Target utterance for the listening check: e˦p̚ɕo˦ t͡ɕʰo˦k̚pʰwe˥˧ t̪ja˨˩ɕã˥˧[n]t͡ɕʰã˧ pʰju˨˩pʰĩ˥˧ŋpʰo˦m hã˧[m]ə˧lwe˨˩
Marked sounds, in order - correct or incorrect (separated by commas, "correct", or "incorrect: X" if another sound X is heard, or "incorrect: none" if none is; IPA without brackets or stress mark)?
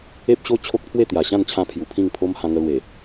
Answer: correct, incorrect: ŋ